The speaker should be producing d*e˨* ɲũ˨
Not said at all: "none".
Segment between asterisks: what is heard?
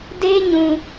e˦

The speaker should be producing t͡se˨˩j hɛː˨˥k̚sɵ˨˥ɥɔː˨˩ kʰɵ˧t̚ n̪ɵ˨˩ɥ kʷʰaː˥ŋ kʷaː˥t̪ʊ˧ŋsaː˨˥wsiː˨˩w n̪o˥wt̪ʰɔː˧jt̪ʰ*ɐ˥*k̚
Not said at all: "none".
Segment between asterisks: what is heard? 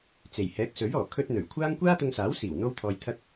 ɐ˥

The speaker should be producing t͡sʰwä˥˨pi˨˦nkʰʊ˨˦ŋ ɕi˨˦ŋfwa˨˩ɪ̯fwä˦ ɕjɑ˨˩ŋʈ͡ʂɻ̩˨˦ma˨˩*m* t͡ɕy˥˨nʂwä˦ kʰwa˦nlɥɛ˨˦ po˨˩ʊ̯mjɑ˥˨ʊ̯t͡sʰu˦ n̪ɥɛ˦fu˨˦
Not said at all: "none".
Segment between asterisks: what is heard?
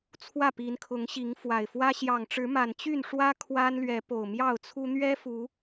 n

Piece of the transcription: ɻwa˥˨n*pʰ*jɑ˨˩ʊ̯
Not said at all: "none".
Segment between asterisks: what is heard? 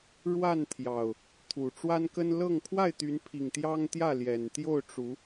t̪ʰ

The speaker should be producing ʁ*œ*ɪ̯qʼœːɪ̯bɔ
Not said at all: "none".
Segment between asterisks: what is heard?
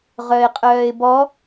œ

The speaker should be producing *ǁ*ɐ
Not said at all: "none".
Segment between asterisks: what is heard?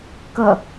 k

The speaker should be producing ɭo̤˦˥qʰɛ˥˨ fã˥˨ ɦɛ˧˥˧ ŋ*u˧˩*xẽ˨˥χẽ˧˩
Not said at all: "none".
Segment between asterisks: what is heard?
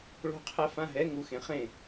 u˧˩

